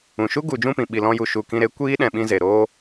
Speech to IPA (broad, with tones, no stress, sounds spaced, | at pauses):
ũ˨ ʃ u˦ ɡ u˨ d͡ʒ ũ˦˨ p ĩ˨ ɓ i˧ l ɔ̃˦ j u˧ ʃ u˦˨ k ĩ˧ ɾ e˨˦ kʷ iː˦ ɗ ɛ̃˧ ɓ ĩ˦ z e˨ ɾ oː˧